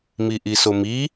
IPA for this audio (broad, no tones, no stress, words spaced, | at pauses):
miʔisomi